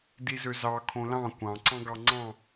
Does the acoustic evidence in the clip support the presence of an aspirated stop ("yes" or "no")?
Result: yes